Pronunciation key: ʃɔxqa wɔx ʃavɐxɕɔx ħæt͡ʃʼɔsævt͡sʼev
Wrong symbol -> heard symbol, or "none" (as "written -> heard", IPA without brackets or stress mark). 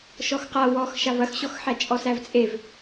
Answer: none